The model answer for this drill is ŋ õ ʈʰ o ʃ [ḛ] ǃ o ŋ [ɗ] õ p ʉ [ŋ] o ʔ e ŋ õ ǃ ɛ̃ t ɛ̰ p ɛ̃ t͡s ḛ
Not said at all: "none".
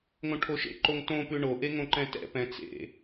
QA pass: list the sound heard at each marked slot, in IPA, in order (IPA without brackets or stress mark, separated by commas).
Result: ḛ, t, ɳ